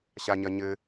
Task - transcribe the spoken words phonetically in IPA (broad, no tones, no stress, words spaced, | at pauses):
ɕaɲɐɲɘ